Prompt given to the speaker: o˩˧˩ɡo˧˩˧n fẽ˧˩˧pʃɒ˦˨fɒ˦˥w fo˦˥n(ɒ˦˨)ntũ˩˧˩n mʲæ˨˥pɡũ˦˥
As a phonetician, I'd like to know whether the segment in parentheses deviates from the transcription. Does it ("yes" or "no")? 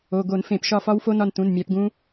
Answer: no